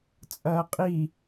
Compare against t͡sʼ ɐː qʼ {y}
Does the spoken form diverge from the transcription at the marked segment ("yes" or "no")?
yes